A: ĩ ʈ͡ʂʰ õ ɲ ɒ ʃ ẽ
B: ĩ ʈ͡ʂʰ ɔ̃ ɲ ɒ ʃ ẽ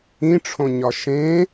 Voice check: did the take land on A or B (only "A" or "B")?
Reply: A